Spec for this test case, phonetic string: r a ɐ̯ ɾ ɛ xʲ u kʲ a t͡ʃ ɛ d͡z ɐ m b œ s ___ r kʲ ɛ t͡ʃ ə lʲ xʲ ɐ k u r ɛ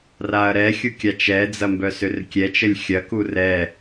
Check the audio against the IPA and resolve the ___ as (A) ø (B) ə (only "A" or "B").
A